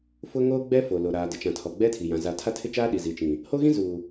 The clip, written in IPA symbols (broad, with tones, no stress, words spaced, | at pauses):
fʊ˦ŋoː˦ɡ͡bɛ˦ fo˨lo˨ ɾaː˨ dɪ˨t͡ʃã˨tʰɔ˨ ɡ͡bɛ˦tʰi˨jã˨ za˨tʰa˦tʰɪ˦t͡ʃaː˦ ɗi˨zi˨t͡ʃĩ˨ | ho˦ɣĩ˦ zuː˨